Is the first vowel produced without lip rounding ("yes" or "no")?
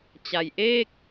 yes